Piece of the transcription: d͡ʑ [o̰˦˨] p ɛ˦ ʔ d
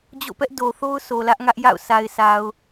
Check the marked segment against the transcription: correct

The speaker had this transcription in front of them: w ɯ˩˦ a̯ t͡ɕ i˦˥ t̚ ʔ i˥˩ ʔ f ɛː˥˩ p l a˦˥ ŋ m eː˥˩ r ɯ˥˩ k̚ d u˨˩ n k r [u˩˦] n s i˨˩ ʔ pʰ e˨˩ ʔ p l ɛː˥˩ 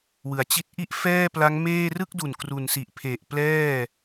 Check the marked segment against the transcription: incorrect: u˨˩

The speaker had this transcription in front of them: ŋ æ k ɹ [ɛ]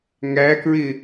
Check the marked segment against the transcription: incorrect: ɪ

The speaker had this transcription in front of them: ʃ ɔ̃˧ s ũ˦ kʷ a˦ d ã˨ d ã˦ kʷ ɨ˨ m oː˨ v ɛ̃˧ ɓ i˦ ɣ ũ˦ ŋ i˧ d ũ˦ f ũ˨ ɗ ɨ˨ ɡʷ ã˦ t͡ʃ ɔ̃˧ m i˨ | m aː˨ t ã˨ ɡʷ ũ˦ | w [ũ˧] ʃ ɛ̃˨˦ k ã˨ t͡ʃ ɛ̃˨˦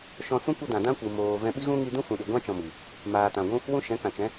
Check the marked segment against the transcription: incorrect: ũ˦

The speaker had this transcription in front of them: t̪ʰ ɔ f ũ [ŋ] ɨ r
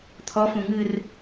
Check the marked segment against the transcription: correct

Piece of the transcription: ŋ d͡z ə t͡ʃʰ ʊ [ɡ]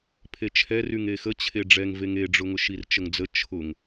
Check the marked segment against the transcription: incorrect: ŋ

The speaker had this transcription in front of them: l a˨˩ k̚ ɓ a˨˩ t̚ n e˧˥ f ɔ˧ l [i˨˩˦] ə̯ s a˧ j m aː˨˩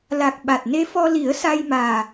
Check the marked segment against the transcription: correct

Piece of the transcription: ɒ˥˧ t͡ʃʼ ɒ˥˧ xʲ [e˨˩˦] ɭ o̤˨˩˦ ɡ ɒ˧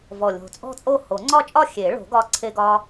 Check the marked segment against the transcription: correct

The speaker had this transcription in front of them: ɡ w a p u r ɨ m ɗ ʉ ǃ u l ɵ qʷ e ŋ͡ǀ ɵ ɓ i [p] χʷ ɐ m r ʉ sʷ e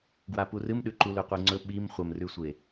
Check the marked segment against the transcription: incorrect: m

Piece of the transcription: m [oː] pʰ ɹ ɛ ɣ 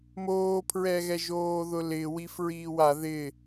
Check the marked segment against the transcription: correct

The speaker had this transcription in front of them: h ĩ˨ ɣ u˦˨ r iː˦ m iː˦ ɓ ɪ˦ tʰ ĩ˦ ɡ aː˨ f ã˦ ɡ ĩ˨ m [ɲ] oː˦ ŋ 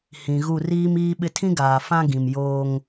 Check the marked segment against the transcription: incorrect: j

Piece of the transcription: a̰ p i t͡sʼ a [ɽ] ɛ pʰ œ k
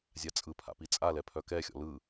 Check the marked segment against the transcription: incorrect: l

